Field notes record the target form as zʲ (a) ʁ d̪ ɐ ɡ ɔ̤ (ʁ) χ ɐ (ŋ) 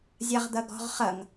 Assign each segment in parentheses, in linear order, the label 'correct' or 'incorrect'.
correct, correct, correct

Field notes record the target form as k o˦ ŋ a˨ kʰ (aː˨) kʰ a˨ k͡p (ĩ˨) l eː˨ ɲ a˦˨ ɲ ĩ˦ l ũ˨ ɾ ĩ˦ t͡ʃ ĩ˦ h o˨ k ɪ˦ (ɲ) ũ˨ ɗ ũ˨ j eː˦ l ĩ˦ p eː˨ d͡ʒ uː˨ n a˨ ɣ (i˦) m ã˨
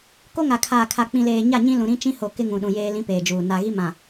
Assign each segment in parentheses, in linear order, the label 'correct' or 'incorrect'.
correct, correct, incorrect: ŋ, correct

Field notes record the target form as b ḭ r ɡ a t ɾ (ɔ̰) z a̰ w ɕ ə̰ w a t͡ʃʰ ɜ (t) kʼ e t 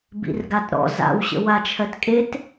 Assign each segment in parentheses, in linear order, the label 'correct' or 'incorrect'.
correct, correct

